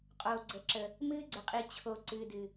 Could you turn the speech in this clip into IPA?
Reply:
qʼoː˨ɡ͡ǀə˨ǁə˨ | mɨː˦ɡ͡ǀə˨qʼi˨ t͡ɕʰo˨ ǀɨː˨dɨ˨

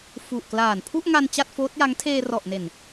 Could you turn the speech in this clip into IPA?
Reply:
fu˨˩ʔklaː˨˩n pʰu˥˩ʔŋa˧n t͡ɕa˥˩t̚foː˦˥t̚ja˦˥ŋ tʰeː˧rɔ˨˩ʔne˨˩n

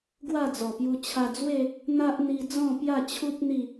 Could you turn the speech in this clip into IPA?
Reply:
ɡwa˥˧d͡zɔ˨˩pju˧ t͡ɕʰa˧d͡zwe˥˧ | n̪a˦ʔ n̪i˧ d͡zɔ̃˥˧pja˥˧t͡ɕʰu˦p̚ n̪i˥˧

